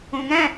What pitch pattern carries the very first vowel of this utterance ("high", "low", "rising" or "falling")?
low